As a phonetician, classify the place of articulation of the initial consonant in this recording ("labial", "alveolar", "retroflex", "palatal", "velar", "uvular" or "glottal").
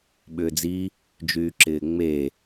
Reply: labial